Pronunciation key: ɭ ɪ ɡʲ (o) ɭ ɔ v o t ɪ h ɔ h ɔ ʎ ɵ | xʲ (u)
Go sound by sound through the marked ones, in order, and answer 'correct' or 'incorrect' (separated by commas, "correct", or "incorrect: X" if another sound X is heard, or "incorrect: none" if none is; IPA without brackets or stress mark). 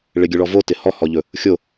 incorrect: ɵ, incorrect: o